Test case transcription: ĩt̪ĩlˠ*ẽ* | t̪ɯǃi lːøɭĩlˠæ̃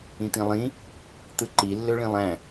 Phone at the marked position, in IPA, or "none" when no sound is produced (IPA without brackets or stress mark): ĩ